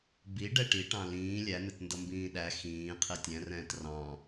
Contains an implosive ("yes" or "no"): yes